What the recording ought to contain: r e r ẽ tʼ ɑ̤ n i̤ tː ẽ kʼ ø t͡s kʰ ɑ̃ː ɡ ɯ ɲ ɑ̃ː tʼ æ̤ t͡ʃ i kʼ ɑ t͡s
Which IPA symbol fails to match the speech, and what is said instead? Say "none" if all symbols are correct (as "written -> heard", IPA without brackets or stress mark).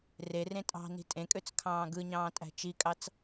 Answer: tː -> tʼ